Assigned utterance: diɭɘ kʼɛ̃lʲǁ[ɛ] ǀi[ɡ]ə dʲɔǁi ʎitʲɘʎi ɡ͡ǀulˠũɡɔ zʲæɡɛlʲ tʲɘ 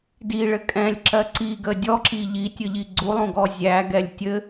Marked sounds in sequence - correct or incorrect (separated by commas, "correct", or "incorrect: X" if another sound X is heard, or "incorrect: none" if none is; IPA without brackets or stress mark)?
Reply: incorrect: ɜ, correct